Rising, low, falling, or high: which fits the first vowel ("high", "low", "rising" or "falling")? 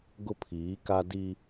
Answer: high